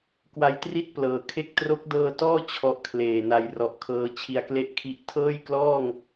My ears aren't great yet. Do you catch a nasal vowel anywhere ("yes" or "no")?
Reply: no